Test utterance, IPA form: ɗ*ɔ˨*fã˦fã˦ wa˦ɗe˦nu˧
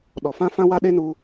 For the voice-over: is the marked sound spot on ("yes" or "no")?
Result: yes